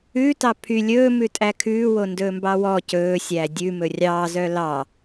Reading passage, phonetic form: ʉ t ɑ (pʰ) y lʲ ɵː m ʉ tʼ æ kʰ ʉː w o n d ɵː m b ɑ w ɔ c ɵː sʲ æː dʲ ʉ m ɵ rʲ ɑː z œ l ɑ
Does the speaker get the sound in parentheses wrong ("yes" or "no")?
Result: no